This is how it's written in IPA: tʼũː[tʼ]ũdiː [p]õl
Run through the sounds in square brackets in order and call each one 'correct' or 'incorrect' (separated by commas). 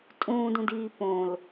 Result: incorrect, correct